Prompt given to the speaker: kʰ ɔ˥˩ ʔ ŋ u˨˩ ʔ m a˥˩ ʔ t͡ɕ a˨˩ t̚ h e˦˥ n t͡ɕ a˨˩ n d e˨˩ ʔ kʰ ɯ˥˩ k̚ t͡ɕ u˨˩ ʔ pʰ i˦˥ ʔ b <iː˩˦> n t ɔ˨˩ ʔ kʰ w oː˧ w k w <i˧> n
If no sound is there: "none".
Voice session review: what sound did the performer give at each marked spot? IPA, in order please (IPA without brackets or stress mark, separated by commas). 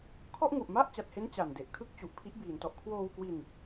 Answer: iː˩˦, i˧